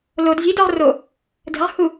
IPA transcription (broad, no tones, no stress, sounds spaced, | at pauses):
l o d zʲ ə̤ i̯ d ɔ ʁ r o | d ə̤ ʁ h u